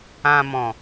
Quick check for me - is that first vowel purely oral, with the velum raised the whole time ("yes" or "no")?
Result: no